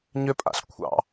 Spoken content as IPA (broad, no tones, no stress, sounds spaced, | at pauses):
ɲ ʏ pʼ a̰ ɬ kʷʰ ɑ̰